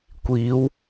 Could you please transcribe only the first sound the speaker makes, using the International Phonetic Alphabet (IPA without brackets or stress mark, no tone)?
kʷ